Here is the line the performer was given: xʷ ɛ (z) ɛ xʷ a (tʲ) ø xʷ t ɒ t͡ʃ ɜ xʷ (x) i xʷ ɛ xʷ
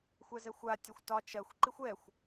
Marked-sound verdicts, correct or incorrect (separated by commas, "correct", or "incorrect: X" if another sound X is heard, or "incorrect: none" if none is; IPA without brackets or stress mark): correct, correct, incorrect: ǃ